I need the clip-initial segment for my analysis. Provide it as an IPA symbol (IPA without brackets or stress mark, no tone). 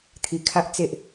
t̪ʰ